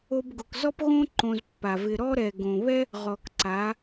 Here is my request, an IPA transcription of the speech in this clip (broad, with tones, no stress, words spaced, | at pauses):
o˧bɡʊ˨k zɔ˦pɣõ˦ ǃõ˧zpːa˨vɪ˧ ɾɔ˦ɾɛ˨ ɡõ˨βɛ˦ | ʁɔ˨kǀa˨˦